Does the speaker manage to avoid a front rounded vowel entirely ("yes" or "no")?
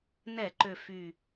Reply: no